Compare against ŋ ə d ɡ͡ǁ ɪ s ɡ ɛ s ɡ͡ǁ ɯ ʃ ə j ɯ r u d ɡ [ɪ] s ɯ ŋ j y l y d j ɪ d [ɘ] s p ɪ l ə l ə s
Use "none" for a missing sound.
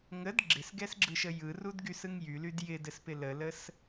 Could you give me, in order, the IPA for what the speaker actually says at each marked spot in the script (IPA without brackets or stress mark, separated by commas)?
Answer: y, ɘ